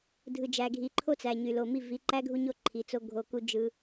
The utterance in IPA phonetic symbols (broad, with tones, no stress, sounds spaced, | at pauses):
dʱ ɯ˨ d͡ʒ æ˨ ɡʱ i˨ ǃʰ o˦ t͡s æ˨ ɲ y˨ l o˨ m i˦˨ v i˨ ǃ æ˦ ɡʱ u˧ ɲ o˦˨ ǃʰ i˨ t͡s o˧ ɡʱ o˨ k u˧ d͡ʒ ɯ˦